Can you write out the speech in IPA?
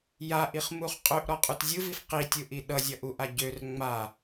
j a ʔ i χ m u χ qʼ ø ʔ ɾ ɔ qʼ u t zʲ ɯ v i f q i tʲ ɯ ʔ i ɗ ʌ zʲ ʌ ʔ u ʔ a ɟ ø r ŋ͡m a

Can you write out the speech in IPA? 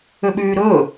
ø ɓ yː ɾ ɵː

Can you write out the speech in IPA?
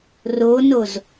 r o n o z

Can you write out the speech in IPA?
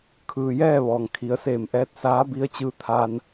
kʰ ɯː˩ j ɛː˥˨ ʋ ɔː˩ ŋ kʰ i˩˧ ə̯ s eː˧˩ m ʔ ɛː˧˥ t̚ s aː˧˥ b i˧ ə̯ t͡ɕ ɯː˧˥ t̪ʰ aː˧ n

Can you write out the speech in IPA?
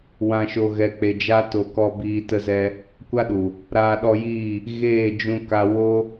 w ã˧ ʃ o˧ ɣ ɛ˧ k͡p e˧ d͡ʒ a˦ t o˧ k ɔ˧ b iː˧ t ə˧ z ɛ˧ | kʷ a˦ ɗ u˨ | ɾ aː˧ ɗ ɔ˧ j iː˦˨ | ɣ eː˦˨ d͡ʒ ũ˧ k a˧ w o˦

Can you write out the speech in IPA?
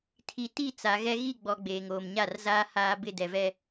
tʰ i˨ t i˦˨ t͡s a˨ ɣ ɛ˦ ɣ i˦˨ ɡ͡b ɔ˨ ɡ͡b eː˨ ŋ oː˨ m ɲ a˦˨ r z aː˦ h aː˦ b ɪ˦˨ d ɛ˨ v ɛ˦

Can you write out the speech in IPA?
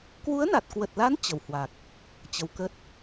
k w u˨˦ ə̯ n a˨˩ t̚ k w ə˨˩ t̚ l a˨˦ n t͡ɕ ə˧˩ w h w a˨˩ k̚ | t͡ɕ ə˨˦ w k ə˦˥ t̚

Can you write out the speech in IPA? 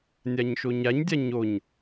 nʲ a ɲ ʃ o ɲ a ɲ dʲ a ɲ o ɲ

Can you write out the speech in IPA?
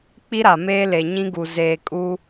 k͡p i˦ ɾ a˨ m eː˦ l e˨ ɲ ĩ˦ ɡ u˨ z eː˨ kʼ u˦

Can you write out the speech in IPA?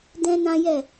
d ɛ̃˦ n ã˦ j ɛ˦˨

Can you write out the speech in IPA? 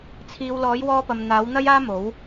t͡sʰ iː˨ w l ɔː˨˥ j w ɔː˧ p ɐ˨ m n̪ aː˨˥ w n̪ ɐ˥ j aː˥ m o˨˥ w

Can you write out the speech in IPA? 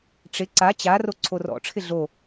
ʈ͡ʂ ɪ ǀ a t͡ɕ a r o ǀʰ o r ɔ̰ ʈ͡ʂʰ ɪ ɮ o

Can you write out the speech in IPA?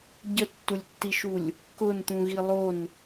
ɟ ə tː u lʲ tː i ʃ u lʲ | k ʊ n t̪ ũ ɣ i lˠ o n

